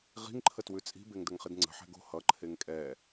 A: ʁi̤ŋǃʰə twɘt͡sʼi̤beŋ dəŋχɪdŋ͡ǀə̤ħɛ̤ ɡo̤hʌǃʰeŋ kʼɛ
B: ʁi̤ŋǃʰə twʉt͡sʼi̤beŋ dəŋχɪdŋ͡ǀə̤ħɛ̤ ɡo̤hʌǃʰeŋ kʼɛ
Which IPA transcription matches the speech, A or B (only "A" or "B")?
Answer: B